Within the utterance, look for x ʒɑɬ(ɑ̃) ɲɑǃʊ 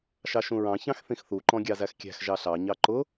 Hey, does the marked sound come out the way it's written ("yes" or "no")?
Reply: no